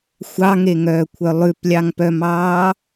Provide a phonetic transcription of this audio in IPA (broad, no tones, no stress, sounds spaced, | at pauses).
xʷ ɑ ŋ e ŋ œː kʷʰ œ lˠ ʉ p lʲ ɑ ŋ p œ m ɑː